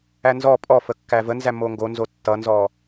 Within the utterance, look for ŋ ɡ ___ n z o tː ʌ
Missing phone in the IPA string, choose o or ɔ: o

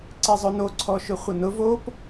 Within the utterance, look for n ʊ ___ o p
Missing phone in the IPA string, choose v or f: v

